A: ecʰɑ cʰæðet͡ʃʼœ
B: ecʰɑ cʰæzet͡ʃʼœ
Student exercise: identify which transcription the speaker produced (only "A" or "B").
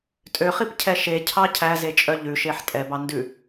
B